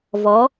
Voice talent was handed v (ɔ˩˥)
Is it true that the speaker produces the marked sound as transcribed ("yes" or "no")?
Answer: no